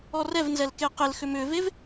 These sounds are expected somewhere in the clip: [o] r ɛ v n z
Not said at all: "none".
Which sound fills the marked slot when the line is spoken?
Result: ɔ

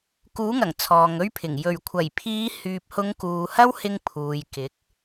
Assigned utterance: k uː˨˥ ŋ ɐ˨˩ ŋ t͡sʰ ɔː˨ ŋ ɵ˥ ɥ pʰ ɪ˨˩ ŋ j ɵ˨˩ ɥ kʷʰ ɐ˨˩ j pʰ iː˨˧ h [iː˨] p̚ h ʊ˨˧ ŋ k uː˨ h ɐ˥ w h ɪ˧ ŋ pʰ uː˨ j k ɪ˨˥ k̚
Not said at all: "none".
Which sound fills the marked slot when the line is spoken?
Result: yː˨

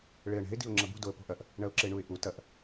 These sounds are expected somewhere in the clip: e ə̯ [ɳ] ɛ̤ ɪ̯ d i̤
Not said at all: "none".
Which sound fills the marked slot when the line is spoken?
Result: ɳ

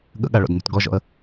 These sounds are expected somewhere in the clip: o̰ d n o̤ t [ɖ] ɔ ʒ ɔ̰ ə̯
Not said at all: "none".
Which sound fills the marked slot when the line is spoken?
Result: ɡ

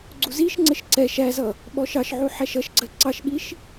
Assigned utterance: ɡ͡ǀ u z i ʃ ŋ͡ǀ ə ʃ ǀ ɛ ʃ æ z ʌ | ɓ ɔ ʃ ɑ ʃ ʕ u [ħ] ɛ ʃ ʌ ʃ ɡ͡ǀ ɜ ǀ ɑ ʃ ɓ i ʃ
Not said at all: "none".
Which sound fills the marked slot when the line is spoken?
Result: ħ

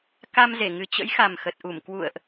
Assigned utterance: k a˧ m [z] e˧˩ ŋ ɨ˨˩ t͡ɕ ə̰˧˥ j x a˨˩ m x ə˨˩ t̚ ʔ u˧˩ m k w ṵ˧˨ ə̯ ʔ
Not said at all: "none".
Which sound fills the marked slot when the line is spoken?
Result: z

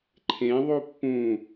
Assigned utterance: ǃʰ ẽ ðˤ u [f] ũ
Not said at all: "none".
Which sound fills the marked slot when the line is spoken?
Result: pː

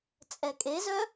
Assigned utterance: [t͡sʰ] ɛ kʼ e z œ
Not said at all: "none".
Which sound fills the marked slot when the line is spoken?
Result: t͡sʼ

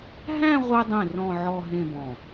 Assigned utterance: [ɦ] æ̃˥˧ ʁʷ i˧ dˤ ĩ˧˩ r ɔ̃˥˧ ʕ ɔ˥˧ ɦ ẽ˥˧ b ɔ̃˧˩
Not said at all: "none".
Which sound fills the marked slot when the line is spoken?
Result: ɦ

